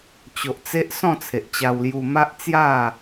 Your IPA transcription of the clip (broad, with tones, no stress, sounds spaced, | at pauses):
t͡ɕ o˨ ʔ t͡s e˦ ʔ s ɔ̃˥˧ t͡sʰ e˨ ʔ t͡ɕ a˧ w l j u˧ m a˦ ʔ t͡s j a˥˧